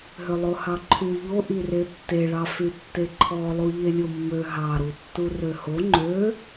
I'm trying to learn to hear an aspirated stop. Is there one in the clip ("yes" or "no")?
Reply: yes